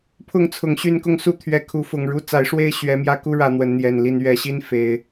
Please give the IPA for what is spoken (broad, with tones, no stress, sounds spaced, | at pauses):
pʰ ʊ˥˨ ŋ t͡sʰ ʊ˨˩ ŋ ɕ y˥˨ n k ʊ˥˨ ŋ s u˥˨ t̪ʰ ɥ ɛ˨˦ kʰ u˨˦ f ʊ˨˩ ŋ ɻ u˦ t͡s a˨˦ ɪ̯ ʂ w e˥˨ ɪ̯ ɕ ɥ ɛ˨˦ m j ä˧ k u˦ ɻ ä˨˦ n̪ w ə˨˦ n n̪ j ɛ˨˩ n l i˥˨ n ɥ ɛ˨˦ ɕ i˦ n f e˨˦ ɪ̯